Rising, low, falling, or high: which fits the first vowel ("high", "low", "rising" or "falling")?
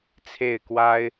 falling